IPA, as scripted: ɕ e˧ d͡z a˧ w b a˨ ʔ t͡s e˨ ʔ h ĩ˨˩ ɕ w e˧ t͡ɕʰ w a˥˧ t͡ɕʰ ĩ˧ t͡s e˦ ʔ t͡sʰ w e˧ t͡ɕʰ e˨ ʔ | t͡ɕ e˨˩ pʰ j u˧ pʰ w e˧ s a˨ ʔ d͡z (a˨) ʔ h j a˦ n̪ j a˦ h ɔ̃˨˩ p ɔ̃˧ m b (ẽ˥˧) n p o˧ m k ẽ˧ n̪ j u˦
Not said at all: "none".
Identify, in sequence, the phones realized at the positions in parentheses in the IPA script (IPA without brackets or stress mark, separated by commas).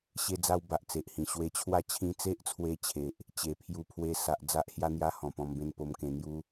a˦, ẽ˥˧